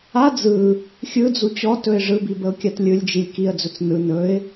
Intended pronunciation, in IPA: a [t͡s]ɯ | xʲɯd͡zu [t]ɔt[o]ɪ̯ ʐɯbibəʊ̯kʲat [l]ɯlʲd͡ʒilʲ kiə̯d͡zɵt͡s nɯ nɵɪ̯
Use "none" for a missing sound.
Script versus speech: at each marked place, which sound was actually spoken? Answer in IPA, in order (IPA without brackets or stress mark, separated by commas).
d͡z, t͡ɕ, ɵ, lʲ